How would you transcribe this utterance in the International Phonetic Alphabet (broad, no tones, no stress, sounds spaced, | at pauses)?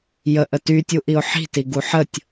j ə ʔ ə t y tʲ u ʔ i ʊ̯ ħ i̤ t i ɡ u ħ ə tʲ